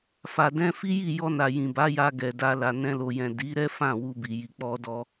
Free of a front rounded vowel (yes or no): yes